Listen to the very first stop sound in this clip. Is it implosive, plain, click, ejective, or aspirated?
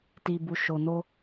plain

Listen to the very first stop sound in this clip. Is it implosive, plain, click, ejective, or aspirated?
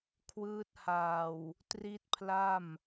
aspirated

